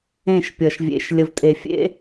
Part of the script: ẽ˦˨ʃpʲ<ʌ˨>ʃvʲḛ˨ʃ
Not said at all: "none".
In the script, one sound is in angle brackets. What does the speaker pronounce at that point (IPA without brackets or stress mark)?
ʌ˨